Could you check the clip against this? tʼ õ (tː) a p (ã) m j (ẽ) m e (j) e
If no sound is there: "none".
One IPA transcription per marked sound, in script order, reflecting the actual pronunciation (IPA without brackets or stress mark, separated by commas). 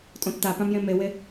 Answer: tː, ã, ẽ, w